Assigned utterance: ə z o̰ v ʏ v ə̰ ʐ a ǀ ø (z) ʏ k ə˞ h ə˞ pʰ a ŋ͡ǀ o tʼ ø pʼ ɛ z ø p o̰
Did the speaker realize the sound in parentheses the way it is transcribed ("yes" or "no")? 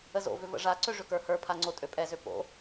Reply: no